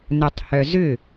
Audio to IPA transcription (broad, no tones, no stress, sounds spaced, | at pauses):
n œ tˤ h œ z ʏ